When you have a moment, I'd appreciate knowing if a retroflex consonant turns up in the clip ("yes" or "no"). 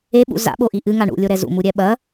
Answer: yes